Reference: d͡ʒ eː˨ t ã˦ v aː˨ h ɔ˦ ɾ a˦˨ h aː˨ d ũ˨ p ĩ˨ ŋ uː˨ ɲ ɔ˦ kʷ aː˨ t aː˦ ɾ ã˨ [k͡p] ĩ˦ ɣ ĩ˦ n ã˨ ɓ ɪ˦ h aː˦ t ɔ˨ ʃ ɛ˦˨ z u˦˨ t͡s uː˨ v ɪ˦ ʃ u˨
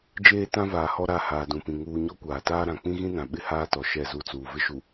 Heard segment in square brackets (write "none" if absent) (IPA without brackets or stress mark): k͡p